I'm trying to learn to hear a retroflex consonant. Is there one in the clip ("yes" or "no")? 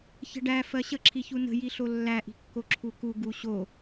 yes